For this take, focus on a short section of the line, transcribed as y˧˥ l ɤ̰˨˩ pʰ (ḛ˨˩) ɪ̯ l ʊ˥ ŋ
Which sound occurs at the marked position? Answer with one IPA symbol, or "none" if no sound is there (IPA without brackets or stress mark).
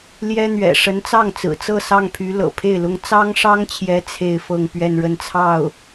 e˥˩